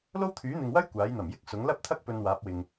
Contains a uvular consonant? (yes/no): no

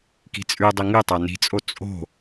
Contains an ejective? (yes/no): yes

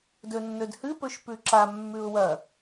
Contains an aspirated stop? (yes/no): no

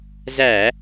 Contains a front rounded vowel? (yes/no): no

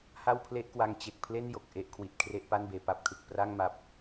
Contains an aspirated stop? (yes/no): yes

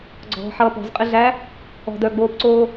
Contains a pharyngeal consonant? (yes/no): yes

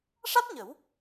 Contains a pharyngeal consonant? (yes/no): no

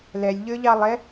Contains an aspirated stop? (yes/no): no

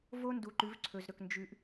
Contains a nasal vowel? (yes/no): no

